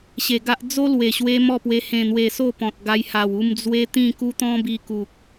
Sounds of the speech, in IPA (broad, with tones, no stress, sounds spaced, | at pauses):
ɕ e˨˩ ɡ a˦ ʔ d͡z o˦ l w e˨˩ ɕ w e˧ m ɔ˥˧ p w e˧ h ẽ˨˩ n̪ w e˨˩ s o˥˧ p ɔ̃˨ t̚ ɡ a˧ j h a˨˩ w u˧ m d͡z w e˦ t̪ ĩ˥˧ k u˦ t̪ ɔ̃˦ b i˧ k u˨ k̚